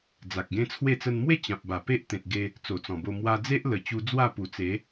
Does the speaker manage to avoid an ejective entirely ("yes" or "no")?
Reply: yes